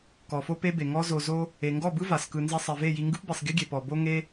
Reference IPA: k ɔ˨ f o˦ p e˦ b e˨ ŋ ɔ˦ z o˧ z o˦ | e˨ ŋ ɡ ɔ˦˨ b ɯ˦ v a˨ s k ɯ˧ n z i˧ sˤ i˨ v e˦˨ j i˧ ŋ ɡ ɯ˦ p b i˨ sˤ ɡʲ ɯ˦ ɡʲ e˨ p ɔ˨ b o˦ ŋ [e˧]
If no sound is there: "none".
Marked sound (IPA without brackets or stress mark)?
e˦